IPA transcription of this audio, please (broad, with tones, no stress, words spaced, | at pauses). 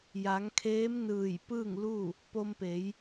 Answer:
ja˩˧ŋkʰeː˧˥mnɯː˧˩j pɯː˥˨ŋlu˥˨ | po˧mpe˩˧j